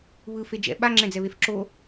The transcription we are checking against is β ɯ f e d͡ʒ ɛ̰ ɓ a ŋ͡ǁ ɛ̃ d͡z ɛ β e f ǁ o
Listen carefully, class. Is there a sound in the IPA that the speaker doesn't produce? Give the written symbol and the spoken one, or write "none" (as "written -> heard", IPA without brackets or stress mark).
none